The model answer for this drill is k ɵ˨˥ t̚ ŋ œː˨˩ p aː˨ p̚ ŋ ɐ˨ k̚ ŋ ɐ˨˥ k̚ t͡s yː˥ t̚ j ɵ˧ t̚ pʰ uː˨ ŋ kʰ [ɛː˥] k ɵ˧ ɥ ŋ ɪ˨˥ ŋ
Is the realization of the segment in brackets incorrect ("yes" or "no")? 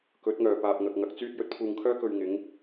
yes